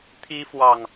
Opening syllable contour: high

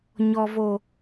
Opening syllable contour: low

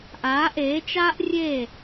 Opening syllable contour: rising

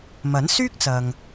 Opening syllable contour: rising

